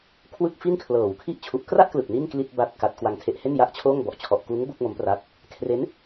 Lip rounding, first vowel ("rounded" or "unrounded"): unrounded